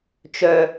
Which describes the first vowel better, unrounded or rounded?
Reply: rounded